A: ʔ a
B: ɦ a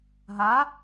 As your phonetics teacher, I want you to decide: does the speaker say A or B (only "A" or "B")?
B